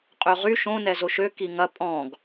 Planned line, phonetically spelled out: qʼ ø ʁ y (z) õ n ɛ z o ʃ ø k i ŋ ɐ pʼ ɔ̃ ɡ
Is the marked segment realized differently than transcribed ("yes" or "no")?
yes